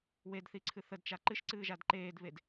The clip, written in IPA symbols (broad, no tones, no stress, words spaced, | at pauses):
wedθiǀʰɨ θədt͡ʃa ǃɨʃǀɨːʒad ǃeːdβed